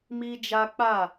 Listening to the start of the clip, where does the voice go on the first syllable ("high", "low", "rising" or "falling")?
high